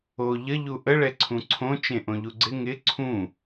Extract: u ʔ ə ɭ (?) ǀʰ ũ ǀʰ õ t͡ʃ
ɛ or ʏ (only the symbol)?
ɛ